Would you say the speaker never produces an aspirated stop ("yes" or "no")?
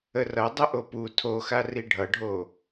no